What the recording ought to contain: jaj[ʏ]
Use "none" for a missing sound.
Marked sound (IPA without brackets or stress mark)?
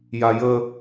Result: ə